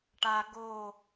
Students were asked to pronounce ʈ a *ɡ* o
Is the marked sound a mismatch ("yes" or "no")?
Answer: no